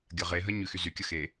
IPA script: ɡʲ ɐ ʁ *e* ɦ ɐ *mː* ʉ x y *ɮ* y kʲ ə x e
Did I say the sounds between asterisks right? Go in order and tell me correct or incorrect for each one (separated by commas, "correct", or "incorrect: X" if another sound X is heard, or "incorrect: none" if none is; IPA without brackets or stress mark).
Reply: correct, incorrect: ɲ, incorrect: z